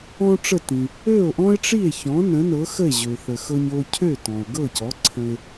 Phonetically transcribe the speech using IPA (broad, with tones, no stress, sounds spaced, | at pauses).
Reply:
ɔ̃˥ ʈ͡ʂ ə˥˩ t ĩ˩ | ø˥˩ o̯ ʔ ɔ̃˥ e̯ ʈ͡ʂ i˥˩ e̯ ç ɔ̃˩˥ n ə̃˩˥ n ɤ˩˥ x ə˥˩ e̯ ʑ ø˩ θ ə˩ x ɤ˧ ɲ o˧ cʰ ø˥˩ t ɔ̃˩ o̯ ɡ ɤ˥˩ c ɔ˩˥ ǀʰ ə̃˧ e̯